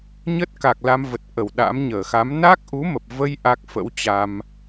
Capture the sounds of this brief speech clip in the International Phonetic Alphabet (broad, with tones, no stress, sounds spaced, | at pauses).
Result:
ɲ ə˦˥ t̚ k a˨˩ k̚ l a˧ m v ə˨˩ t̚ ʔ ə˧˩ w ɗ a̰˧˥ m ɲ əː˧˩ x a˨˦ m n a˦˥ k̚ ʔ u˨˦ m ə˨˩ p̚ v ə˧ j ʔ a˦˥ k̚ f ə̰˧˥ w t͡ɕ a˧ m